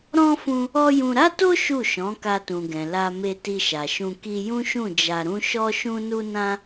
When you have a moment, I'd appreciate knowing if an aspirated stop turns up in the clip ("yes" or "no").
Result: no